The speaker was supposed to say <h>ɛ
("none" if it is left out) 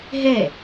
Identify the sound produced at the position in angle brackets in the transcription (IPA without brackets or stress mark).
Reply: ɦ